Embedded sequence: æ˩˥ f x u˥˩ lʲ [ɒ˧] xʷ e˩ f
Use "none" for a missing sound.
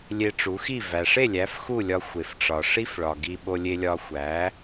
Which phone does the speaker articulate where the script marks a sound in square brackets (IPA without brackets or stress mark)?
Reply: ɒ˧